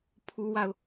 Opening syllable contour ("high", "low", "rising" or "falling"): high